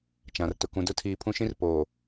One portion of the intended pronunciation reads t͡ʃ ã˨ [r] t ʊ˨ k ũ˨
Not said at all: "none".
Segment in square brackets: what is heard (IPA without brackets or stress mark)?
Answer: r